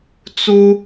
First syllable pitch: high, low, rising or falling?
high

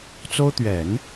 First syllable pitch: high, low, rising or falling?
high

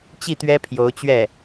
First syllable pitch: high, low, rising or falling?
falling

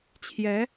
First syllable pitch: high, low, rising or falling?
rising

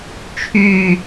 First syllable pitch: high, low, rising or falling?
falling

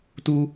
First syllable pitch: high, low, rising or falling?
high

